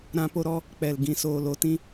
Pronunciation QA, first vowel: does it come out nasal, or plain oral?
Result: nasal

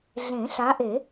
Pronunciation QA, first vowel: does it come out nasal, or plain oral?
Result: nasal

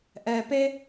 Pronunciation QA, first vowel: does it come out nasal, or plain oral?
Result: oral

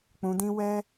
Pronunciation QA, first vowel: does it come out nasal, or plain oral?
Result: nasal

